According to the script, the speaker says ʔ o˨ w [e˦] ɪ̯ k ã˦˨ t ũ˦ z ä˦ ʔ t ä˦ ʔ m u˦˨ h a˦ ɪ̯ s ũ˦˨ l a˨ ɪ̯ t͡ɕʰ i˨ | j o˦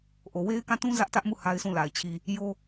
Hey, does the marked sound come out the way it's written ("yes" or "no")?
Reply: yes